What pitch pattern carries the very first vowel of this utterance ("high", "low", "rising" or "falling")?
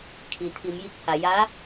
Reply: low